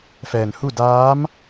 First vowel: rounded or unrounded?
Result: unrounded